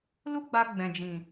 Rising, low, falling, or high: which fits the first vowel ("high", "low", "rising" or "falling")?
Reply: high